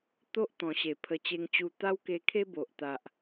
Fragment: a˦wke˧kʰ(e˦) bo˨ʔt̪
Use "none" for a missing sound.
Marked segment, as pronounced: e˦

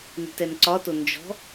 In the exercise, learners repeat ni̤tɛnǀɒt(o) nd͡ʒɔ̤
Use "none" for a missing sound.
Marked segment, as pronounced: o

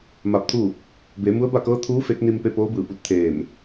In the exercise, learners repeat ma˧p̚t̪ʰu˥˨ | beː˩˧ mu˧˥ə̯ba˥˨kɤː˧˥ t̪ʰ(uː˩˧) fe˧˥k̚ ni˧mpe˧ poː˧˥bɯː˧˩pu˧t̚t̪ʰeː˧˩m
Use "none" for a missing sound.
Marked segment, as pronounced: uː˧˥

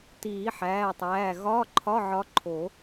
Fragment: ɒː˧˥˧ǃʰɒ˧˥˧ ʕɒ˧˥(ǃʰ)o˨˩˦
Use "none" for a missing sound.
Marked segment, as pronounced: ǃʰ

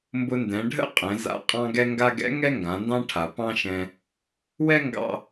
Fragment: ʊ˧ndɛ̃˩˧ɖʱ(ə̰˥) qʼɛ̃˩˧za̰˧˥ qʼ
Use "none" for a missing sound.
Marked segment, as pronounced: ə̰˥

